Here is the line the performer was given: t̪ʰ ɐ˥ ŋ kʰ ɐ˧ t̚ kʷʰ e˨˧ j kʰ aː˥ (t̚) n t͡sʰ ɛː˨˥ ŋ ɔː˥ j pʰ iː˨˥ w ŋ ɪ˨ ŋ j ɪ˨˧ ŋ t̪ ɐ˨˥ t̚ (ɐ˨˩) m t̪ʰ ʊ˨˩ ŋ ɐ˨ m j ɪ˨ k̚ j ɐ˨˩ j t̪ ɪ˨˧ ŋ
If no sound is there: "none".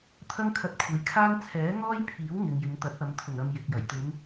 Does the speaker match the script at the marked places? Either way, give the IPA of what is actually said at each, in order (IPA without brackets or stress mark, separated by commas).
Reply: none, ɐ˨˧